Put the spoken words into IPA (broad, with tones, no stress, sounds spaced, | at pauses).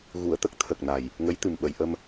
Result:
ɣ u˨˩˨ ə̯ t̪ ə˦˥ k̚ t̪ʰ ə˨˩ k̚ n a˨˩ j | ŋ ə˧˥ j t̪ ɨ˨˩ m ɓ ə˨˩˨ j ʔ ə˧ m